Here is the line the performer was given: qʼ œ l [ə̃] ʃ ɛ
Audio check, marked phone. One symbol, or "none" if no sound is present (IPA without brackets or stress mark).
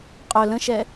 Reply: ə̃